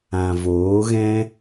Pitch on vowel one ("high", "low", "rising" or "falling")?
low